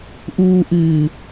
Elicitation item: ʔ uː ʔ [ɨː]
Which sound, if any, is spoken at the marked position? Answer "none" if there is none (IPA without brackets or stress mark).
ɨː